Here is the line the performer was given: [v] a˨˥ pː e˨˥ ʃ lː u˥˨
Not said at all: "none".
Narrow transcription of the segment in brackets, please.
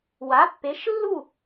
w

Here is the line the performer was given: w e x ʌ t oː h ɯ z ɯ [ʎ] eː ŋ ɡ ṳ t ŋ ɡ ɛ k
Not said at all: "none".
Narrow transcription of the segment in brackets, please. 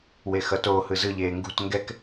ʎ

